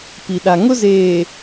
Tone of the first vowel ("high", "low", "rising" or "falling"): low